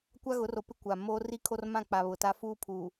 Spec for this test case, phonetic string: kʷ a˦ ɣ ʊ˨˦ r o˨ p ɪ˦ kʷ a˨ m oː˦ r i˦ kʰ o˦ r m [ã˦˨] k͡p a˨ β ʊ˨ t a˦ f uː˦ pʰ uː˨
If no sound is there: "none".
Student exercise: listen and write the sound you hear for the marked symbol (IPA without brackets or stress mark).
ã˦˨